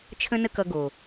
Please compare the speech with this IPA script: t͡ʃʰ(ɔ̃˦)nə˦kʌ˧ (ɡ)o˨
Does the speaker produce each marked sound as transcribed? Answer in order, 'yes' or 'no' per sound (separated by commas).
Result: no, yes